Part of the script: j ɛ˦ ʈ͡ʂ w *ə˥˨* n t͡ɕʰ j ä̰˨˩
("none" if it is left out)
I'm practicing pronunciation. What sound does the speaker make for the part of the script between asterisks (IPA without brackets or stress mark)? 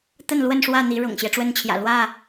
ə˦